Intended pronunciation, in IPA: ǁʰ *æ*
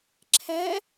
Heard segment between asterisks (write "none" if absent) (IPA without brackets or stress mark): æ